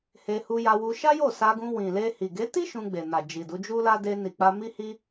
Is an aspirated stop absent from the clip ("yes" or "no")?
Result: yes